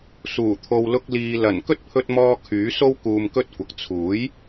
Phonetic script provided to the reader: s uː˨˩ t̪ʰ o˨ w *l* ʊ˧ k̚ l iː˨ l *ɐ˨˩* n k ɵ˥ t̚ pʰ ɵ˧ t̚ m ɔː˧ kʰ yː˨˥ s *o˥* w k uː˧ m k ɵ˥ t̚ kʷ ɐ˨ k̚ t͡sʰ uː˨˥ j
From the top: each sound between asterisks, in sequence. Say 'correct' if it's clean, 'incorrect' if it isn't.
correct, correct, correct

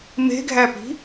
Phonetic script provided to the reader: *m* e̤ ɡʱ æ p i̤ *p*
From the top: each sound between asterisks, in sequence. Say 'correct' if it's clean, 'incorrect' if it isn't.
correct, incorrect: none

